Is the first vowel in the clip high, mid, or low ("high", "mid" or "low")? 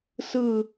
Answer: high